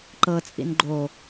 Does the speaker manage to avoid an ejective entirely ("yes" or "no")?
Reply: no